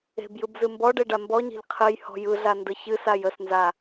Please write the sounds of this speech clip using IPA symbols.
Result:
e̤ b j ɯ b z ɨ m b ɔ ɖ e ɖ a m b ɔ ɲ e̤ ʎ qʰ ɨ j h ɔ̤ j ɯ ɮ a n d ə ç ɨ s a j ə s n z a

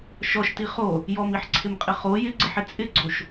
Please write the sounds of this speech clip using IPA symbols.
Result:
ʃ ɔ ʃ t i χ o | j ɔ m i ħ ǀʰ ɪ m qʼ ɪ χ o j ɪ ɡ͡ǀ ɪ ħ ɪ t͡sʼ ɪ ɡ͡ǀ o ʃ

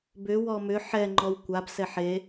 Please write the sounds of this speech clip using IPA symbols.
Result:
b ʏ w ɔ m ʏ ħ ɛ ŋ͡ǃ ɔ w kʷ a b s ɛ ħ e

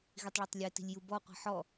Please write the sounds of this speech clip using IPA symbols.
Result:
ɣ i tˤ ɭ ɔ tˤ lʲ ɛ t i̤ lʲ j u b ɔ qʷ i̤ ħ ɔ

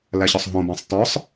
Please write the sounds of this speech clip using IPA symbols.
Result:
l æ ɕ ɒ sˤ ɦ õ b æ̃ sˤ t ɒ sˤ

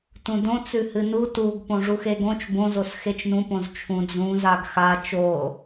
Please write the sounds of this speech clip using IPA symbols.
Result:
t ũ d õ t͡s ʉ h ɨ n u t u ɡ p õ ʐ u x e ɡ õ t͡ʃ b õ z o s x e t͡ʃ n ũ p õ z t͡ʃʰ ũ d͡z ũ z a ɡ x a t͡ʃ o

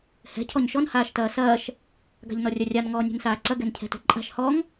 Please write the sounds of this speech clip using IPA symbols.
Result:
h ɛ̤ cʰ ɔ ɲ ʃ ɔ n h aː ʃ t ɐː s ɐː ʃ | ɡ a̤ ʎ n ɔ rʲ ɐ rʲ a n ŋ ɔː nʲ ɛ̤ n s aː ǀ ɐ ɡ ɛ n cʰ ɛ̤ t ɛ̤ ǃʼ a̤ ʃ h ɔ ŋ

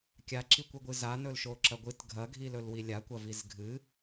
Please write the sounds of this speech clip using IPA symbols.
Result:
kʲ a ǁ i kʷ ɨ ɡʷ ɨ z a n ɵ l ʃ o ǁ ɐ ɡʷ ɨ t ɡʱ ɐ ɡʱ i l ɵ l w i lʲ a kʷ ɐ v i z ɡʱ ɨ

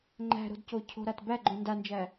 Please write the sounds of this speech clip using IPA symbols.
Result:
ŋ͡ǃ æ̤ ɾ o̤ d c o cʰ o̤ ɾ a t b æ ɡ͡ǃ õ n d a n d͡ʒ æ

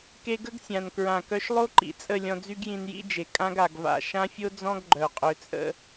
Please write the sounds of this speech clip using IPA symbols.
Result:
k e˧ ɡ ə˦ ɡ sʲ ã˨ n k ɹ ã˨ k œ˧ ʃ lˠ o˦ ǃ ḭ˨ t͡sʼ ə˦˨ lʲ ɔ̃˧ d͡z y˦ ɡ j ĩ˧ n j ḭ˦ d͡ʒ e˨ kʼ ã˧ ɡ a˨ ɡ v a̰˨ ʃ ã˦ fʲ o˦ d͡z ɔ̃˦ ɡ ɡ͡ǃ œ˨ qʼ ø˧ t͡sʼ ə̰˦

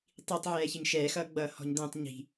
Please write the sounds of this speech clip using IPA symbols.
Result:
tˤ i tˤ ʕ ɛː ç ɪ ɲ ʃ ɛː x ʌː ɡ͡b ʌː h ɔ̤ ɲ d̪ ɛ̃ tˤ ɲ i̤

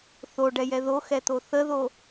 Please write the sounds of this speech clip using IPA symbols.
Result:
θ o ɖ ɛ j ɛ ð o x ɛ t̪ o θ ə ð o

